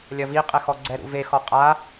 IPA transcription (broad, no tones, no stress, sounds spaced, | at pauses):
lʲ ɐ v i qʼ ɛ x ɔ ɡ͡ǀ ɛ ɾ ṵ v e x ɔ qʼ a